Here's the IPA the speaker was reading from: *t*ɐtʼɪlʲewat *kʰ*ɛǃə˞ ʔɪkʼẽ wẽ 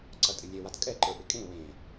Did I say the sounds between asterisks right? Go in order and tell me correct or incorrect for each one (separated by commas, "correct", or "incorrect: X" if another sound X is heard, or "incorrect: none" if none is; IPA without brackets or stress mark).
incorrect: ǀ, incorrect: kʼ